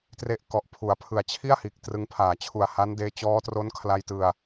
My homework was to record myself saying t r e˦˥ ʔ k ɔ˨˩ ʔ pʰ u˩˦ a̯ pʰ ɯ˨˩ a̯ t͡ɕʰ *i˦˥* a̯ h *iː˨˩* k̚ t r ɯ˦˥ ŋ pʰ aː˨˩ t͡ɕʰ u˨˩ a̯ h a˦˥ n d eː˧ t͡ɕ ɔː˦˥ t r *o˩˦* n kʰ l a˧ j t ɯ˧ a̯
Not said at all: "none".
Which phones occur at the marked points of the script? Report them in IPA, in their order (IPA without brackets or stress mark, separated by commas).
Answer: i˥˩, iː˨˩, o˦˥